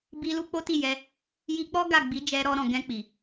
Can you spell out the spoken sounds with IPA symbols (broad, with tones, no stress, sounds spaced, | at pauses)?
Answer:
b i˧ l u˦ k͡p o˦ t i˦˨ j ɛ˧ | j i˧ k͡p ɔ˦ ɡ a˦˨ ɡ͡b i˨˦ d͡ʒ ɛ˧ ɾ ɔ˧ ɾ ɔ̃˨ ɡ ɛ̃˧ k͡p i˨